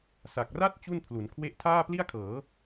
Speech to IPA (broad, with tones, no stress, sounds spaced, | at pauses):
s a˨˩ k̚ r a˥˩ t̚ t͡ɕ u˥˩ n pʰ l u˩˦ n kʰ w e˥˩ ʔ tʰ aː˥˩ p l i˥˩ a̯ kʰ ɤː˩˦